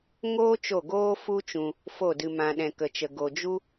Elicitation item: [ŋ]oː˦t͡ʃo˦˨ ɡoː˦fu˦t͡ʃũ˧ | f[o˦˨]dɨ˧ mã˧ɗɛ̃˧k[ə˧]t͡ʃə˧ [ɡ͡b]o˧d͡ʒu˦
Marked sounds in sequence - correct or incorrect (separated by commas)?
correct, correct, correct, incorrect